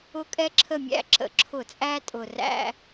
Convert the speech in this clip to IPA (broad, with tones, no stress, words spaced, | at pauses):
ʊ˦˨kʼɛ˦ǁʰə˦˨mʲæ̰˦˨ ǁə̰˧˩˧ǁʰʊ˧˩˧t͡sʼæ˦tʼʊ˨˩ ræ̰˦